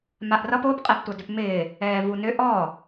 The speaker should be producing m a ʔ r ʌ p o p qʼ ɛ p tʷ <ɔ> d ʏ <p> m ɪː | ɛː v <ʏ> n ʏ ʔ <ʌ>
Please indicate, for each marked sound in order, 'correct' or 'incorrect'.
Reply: incorrect: ʌ, correct, incorrect: u, incorrect: ɔ

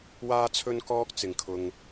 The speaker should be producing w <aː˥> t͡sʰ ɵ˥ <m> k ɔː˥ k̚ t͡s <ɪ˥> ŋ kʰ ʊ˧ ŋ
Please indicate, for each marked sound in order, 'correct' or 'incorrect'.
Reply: correct, incorrect: n, incorrect: ɪ˨

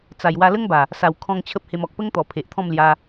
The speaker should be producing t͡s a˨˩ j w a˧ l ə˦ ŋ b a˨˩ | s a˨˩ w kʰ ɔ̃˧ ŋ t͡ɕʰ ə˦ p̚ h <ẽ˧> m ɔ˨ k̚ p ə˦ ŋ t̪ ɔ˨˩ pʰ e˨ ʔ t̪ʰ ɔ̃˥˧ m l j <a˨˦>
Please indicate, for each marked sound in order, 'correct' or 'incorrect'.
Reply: incorrect: e˧, incorrect: a˧

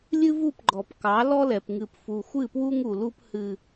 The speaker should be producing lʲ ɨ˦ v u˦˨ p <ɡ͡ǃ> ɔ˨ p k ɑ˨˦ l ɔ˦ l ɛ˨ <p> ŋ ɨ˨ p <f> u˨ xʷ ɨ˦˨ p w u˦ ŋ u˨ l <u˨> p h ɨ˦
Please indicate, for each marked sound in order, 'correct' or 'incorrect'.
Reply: correct, correct, correct, incorrect: u˦

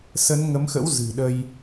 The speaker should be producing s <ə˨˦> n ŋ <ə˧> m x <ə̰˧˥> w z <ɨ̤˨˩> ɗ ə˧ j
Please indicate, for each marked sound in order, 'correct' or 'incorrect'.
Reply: correct, incorrect: ə˨˦, correct, correct

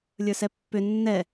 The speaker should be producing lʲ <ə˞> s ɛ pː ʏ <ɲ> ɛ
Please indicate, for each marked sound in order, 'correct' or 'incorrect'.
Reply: correct, incorrect: nː

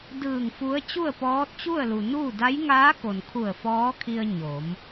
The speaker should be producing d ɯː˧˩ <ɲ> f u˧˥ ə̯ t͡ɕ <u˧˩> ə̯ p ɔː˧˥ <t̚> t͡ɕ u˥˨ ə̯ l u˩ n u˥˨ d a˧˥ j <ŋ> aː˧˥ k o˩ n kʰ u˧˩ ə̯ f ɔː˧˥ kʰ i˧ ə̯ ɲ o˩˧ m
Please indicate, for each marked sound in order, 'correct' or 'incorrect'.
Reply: incorrect: ŋ, incorrect: u˥˨, correct, correct

